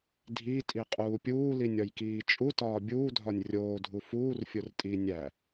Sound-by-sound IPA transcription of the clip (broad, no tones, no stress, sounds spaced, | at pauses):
dʱ i tʼ i qʼ uː pʲ uː l i nʲ ɒ j k iː t͡ʃʼ u t ɒː bʲ uː dʱ ɒ nʲ rʲ oː dʱ u f uː r fʲ o r tʼ i nʲ æ